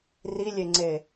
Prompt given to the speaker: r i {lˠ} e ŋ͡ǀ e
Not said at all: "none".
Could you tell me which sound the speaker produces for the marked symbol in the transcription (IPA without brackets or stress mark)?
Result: lʲ